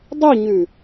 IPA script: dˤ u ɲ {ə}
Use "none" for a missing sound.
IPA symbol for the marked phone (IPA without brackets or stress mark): ʉ